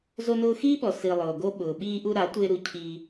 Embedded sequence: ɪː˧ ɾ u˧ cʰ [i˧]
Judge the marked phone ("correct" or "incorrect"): correct